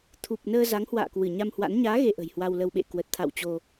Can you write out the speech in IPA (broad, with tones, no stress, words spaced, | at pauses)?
t̪ʰu˨˩p̚nəː˧ za˨˦ŋhwa̰ː˧˨kwɨ˧˩ ɲa˧mhwa̰˧˥n ɲaː˨˦ ɣe˧ʔə̤˨˩jhwa˧wlə˧w ɓḛ˧˨kwə˨˩t̚t̪ʰa̰˧˨w t͡ɕo˧